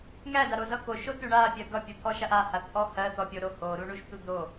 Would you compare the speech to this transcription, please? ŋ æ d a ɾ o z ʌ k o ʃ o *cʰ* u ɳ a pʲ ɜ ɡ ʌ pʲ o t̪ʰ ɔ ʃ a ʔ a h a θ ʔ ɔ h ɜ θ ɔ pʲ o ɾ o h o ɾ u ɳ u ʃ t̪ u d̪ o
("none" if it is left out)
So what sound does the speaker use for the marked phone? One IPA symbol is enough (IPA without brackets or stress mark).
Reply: t